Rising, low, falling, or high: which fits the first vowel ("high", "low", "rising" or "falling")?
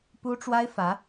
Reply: high